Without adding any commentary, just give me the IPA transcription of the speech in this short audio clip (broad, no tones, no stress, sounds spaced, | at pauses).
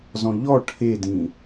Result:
z ɔ̃ ʎ ɔ ʈʰ e d ĩ